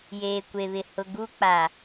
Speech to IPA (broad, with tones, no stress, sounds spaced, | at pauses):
j eː˨ kʷ e˨ β ɪ˨ h ʊ˨ ɡ uː˦ k͡p aː˨